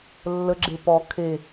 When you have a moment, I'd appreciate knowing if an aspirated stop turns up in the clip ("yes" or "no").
yes